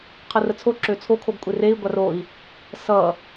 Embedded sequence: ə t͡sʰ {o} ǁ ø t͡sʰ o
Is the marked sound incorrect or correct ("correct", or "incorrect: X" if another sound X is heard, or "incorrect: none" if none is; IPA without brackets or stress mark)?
correct